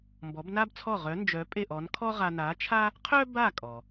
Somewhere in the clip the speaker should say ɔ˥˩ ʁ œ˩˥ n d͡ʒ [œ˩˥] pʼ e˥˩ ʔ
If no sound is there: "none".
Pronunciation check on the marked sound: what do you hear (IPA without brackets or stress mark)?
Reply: œ˩˥